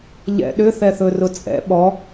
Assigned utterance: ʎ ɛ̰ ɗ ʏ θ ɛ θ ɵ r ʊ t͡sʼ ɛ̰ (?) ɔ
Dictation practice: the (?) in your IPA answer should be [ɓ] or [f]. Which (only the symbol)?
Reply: ɓ